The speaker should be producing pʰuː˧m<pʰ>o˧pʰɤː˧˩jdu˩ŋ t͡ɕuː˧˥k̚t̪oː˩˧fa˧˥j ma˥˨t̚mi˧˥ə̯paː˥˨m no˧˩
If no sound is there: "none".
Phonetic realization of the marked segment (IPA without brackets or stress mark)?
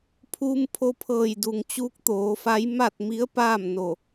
pʰ